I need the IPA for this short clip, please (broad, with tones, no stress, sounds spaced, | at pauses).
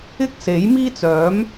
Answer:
ɪ˥ k̚ s e˨˥ j m iː˥ t͡s œː˨˥ m